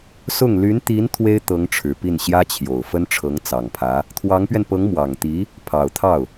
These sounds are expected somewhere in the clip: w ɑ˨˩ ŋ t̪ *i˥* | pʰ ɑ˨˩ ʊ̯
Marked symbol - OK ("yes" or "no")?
no